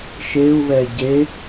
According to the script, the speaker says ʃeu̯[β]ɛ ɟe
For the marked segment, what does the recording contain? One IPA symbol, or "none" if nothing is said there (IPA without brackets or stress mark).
β